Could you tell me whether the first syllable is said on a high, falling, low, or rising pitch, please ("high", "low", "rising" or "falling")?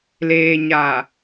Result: low